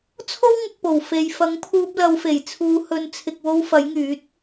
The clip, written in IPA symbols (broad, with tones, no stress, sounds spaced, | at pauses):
t͡sʰ o˥ w ŋ ʊ˨ k̚ p o˨˩ w f e˨ j f ɐ˨˥ ŋ pʰ uː˧ p̚ l ɐ˨˧ w f e˨˩ j t͡sʰ uː˨˧ h ɵ˨˧ n t͡sʰ ɪ˨ k̚ w o˧ w f ɐ˨˥ j ŋ yː˨˥ t̚